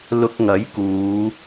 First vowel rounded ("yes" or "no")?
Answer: yes